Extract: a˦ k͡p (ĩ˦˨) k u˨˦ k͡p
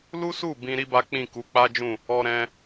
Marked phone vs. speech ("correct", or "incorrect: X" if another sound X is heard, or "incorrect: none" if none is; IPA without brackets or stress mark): correct